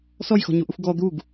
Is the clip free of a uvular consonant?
yes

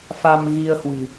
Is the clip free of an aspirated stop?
yes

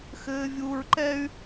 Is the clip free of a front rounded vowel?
no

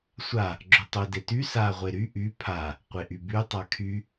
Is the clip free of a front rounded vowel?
no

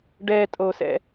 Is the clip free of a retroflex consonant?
no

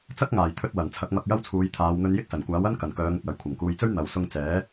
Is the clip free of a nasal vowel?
yes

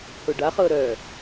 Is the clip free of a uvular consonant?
no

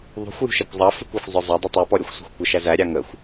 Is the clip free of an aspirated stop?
yes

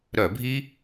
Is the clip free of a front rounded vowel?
no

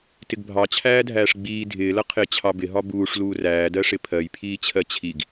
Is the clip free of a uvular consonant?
no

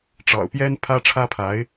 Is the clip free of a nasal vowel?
yes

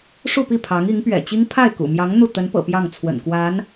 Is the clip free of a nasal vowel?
yes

